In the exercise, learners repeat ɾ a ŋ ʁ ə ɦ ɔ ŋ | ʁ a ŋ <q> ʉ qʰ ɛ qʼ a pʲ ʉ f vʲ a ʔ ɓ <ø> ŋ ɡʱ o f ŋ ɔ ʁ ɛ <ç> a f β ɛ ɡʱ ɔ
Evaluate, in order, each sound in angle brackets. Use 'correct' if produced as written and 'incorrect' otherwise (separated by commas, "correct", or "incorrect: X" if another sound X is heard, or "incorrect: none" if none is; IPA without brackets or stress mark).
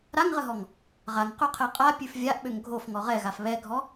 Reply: correct, correct, incorrect: ɣ